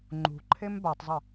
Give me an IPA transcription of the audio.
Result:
ŋ͡ǃ ṳ ǃʰ e m b a tˤ zˤ ɯ

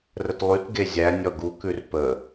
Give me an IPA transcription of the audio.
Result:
r ə t lˠ y t ɡ e zʲ æ nʲ ɔ ɡ u k ʉ r p ə

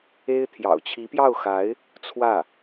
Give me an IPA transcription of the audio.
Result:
e˥ ɪ̯ t̪ʰ j ɑ̰˨˩ ʊ̯ t͡ɕʰ i˧˥ p j ɑ˥˩ ʊ̯ x a˧˥ ɪ̯ | t͡sʰ w ä˥˩

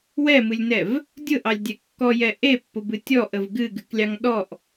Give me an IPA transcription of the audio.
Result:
w ɛ m ɨ lʲ n ɛ v | dʲ ʊ ʔ ɑ lʲ dʲ ɛ kː ɔ j ɛ ʔ e pː ʊ b ɨ tʲ ɔ ʔ ə v ɡ ɨ ɡ ɨ k lʲ ɑ ŋ ɗ ɔ ʔ

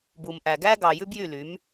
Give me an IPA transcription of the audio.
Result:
b u˩ m ʔ æ˩ ɡ æ˥ ɡ ɑ˩ j ʉ˥ b j y˥˩ l y˩˥ m

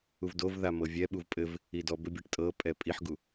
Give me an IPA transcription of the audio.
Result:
u v d o v ð a m ɤ vʲ ɛ ɓ u v pʼ ɘ v | i d ɔ b ɘ bʲ ɛ ʈ tʼ ɤ pʼ ɛ pʼ i ħ ɡ u

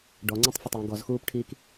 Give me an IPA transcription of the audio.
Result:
ɖ ɔ ŋ͡ǀ ũ tˤ f ɐ tˤ j ũ ɡ ɔ z x uː p ʈʰ iː k

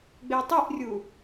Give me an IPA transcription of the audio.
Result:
ɡ͡b e tˤ i ʔ rʲ u

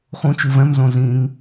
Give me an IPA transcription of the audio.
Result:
χ ũ t͡ʃ u v ɛ̃ m z õ z ĩ ŋ

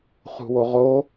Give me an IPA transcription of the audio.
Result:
χ ṳ w o ʁ o

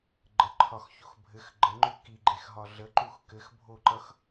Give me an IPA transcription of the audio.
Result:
ɡ͡ǃ ə ǃʰ ɒ x ç o x bʱ ɘ x ɡ͡ǃ ə ŋ͡ǃ ʉ k i ɡ͡ǃ e x ɦ ɒ ɮ ə ǃ u x k ɘ x bʱ o ǃ ʌ x

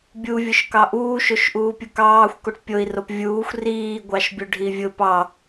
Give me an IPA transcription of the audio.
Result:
bʲ u vʲ ʊ ʃ k ɑ ʔ uː ʃ o ʃ ʔ uː pʲ ʊ k ɑː xʷ k o ʈ pʲ o i̯ r o p vʲ uː xʷ r iː ɡʷ ɑ ʃ bʲ ʊ ɖʱ i vʲ ʊ p ɑ

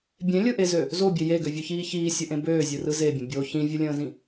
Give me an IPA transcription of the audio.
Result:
bʲ ẽ lʲ ɯ ʔ e z ø | z o bʲ e j e ɡ ø vʲ ø ç iː ç iː sʲ ɘ ʔ ẽ b øː zʲ ɯ r ɯ z e bʲ ə̃ bʲ o ç ĩ vʲ ɯ lʲ ə̃ː z ĩ

